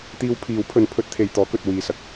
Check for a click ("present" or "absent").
absent